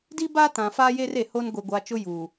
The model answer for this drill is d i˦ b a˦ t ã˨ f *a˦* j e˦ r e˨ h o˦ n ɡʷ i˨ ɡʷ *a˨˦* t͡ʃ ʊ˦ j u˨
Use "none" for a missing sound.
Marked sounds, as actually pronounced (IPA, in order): a˦, a˨˦

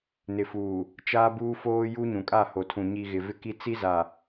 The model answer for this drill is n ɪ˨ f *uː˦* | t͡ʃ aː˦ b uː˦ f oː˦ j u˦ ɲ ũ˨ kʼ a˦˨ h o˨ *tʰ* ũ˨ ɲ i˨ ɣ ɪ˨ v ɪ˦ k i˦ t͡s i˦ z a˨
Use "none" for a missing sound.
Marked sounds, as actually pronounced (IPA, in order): uː˨, tʰ

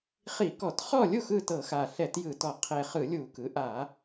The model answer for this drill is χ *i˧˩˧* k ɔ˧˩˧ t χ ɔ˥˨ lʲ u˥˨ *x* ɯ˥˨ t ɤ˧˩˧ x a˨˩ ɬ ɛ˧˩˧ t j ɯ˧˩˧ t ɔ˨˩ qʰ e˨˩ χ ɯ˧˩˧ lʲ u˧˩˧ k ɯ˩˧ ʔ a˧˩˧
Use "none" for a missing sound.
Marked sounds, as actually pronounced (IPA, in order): i˧˩˧, x

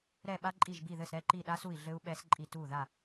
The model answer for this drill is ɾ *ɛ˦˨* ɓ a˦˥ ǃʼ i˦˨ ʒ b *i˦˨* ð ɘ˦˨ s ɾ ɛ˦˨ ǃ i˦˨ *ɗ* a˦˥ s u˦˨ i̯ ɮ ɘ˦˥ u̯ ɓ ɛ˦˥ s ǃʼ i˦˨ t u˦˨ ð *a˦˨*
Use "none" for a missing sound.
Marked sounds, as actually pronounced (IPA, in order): ɛ˦˨, i˦˨, ɗ, a˦˨

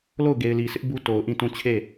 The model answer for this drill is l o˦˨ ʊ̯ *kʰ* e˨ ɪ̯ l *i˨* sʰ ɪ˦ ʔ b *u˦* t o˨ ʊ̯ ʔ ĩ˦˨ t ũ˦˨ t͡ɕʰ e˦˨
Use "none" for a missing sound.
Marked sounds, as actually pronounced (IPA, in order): ɡ, i˨, u˦

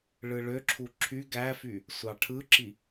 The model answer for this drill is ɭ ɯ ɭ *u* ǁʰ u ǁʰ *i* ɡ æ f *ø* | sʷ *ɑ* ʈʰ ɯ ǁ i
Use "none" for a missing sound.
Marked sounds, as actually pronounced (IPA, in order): ø, y, y, ɑ

